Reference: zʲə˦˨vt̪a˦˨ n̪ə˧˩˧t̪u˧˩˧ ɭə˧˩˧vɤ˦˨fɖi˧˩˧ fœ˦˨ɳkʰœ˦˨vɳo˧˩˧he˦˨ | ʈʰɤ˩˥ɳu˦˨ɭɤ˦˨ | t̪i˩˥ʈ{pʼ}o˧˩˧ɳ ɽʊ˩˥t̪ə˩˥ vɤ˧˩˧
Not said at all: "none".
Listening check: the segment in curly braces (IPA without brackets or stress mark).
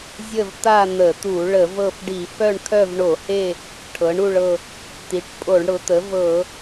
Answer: pʼ